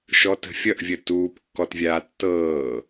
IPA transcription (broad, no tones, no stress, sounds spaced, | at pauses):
ʃ ɔ t ə̤ fʲ ʌ ʔ vʲ ə t uː p kː ɔ t vʲ aː tː ɤː